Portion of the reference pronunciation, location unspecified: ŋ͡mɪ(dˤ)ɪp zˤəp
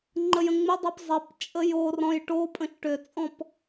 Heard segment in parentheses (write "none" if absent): dˤ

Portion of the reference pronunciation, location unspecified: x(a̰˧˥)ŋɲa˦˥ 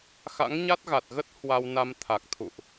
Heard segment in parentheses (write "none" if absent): a̰˧˥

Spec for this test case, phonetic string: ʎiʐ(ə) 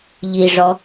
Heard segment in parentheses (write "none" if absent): ɔ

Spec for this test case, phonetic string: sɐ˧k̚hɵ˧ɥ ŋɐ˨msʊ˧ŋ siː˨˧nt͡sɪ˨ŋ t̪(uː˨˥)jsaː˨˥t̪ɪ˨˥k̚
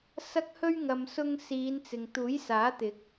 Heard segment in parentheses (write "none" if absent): uː˨˥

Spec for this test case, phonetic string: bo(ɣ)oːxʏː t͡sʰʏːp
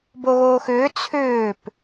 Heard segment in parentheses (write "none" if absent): ɣ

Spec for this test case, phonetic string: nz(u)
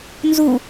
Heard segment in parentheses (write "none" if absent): u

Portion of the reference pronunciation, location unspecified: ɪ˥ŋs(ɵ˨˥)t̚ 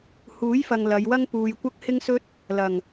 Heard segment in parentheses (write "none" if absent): ɵ˥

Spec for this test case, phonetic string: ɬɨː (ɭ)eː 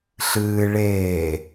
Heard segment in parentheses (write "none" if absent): ɭ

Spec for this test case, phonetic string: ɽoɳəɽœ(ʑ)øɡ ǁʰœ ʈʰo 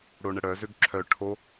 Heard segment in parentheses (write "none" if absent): z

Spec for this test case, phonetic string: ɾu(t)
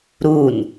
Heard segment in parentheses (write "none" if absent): n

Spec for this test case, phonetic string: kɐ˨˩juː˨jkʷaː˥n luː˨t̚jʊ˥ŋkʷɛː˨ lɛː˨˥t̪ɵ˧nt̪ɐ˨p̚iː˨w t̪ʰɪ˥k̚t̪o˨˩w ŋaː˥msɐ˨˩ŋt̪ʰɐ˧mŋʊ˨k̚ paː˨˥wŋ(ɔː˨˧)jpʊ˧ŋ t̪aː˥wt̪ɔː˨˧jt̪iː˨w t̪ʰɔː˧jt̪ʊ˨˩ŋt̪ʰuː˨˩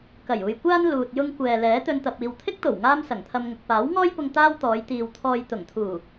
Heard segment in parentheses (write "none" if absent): ɔː˥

